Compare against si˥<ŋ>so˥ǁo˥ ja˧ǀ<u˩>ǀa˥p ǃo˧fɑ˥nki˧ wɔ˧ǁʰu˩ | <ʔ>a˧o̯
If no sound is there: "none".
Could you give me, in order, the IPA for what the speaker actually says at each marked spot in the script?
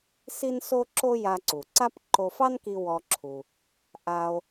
n, u˩, ʔ

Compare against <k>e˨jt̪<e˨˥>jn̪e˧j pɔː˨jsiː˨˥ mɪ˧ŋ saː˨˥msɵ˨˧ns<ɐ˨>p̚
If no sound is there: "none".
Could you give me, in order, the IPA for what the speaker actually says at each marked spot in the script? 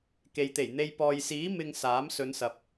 k, e˨˩, ɐ˨

